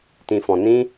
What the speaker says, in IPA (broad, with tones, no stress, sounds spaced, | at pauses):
t ĩ˨ f ɔ̃˨ n ĩ˧